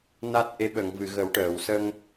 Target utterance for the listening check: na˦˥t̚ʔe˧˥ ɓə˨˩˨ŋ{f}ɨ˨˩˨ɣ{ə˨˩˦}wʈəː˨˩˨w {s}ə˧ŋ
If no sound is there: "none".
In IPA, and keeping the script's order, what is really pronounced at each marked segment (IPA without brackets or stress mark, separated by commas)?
v, ə˨˩˦, s